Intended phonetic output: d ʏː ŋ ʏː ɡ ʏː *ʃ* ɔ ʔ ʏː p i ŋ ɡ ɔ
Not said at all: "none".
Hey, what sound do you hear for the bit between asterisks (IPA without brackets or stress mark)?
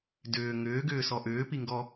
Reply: s